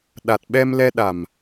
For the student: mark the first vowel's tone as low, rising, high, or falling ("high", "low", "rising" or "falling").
low